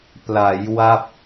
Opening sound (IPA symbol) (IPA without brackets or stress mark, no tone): p